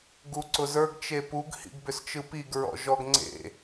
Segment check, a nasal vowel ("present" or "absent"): absent